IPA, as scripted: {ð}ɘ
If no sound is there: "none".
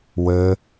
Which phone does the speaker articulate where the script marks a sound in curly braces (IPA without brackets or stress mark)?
w